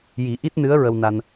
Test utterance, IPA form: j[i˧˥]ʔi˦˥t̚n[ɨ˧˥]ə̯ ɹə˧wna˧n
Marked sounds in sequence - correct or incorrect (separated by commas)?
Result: incorrect, correct